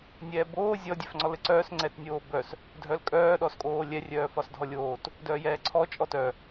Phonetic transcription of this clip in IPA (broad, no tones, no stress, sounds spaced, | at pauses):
nʲ ɛː b oː zʲ ɔ dʲ œ f ŋ͡ǀ ɔ l ɘ ǀ œː s ŋ͡ǀ ɛ t nʲ oː b œ s | dʱ œ l kʼ œː ɗ ɔ s kʼ oː lʲ ɛ rʲ œː f ɒ s dʱ ɔ lʲ oː t | d œː j ɛː ǀʰ ɔ t͡ʃʼ ɔ t œ